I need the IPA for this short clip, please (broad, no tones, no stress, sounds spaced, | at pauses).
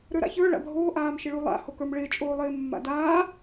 ɾ ə˞ ɾ a̰ ç ə˞ ɭ a̰ bʱ oː ʔ aː m ʃ ɪ ɭ u lˠ a̰ h o k ə˞ m ɭ ɪː t͡ʃʼ oː lˠ ɪː mː a̰ d aː